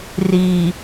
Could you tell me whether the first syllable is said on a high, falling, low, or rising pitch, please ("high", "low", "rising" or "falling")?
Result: low